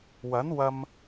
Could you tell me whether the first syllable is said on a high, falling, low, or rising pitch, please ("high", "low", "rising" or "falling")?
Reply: rising